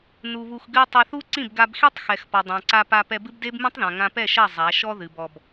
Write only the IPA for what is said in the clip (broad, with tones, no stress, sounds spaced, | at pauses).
n u˧ β u˧ x ɡ ɨ˦ tˤ e˧ θ u˦ ǀ ĩ˦˨ b ɡ a˧ b x i˦ tˤ x ɛ˨ x p ɔ˨ dˤ ã˨ ǀ a˧ p a˧ p ɛ˧ b ɨ˦ b d e˦ b m ĩ˦ tˤ ð ã˨ ŋ ã˧ p ɛ˦˨ ʃ ɐ˦˨ zˤ a˨˦ ʃ ɔ˦ ð ɨ˨ b ɔ˧ b